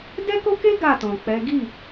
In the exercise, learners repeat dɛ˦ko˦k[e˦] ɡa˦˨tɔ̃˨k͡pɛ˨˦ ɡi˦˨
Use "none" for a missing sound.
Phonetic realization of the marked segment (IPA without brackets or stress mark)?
e˦